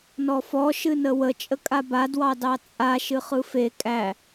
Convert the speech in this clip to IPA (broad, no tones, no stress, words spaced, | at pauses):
nɔfɔ ʃɨnəwə t͡ʃʼəkʼaba dwɑdɑt͡sʼa ʃɨχɯfe kʼæ